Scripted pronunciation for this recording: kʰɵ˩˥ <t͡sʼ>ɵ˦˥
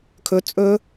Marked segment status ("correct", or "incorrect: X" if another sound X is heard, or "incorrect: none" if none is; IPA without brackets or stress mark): correct